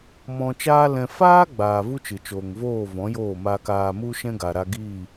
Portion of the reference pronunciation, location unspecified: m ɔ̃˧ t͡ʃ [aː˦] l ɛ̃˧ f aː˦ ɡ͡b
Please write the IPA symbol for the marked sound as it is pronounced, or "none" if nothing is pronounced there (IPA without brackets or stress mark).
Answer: aː˦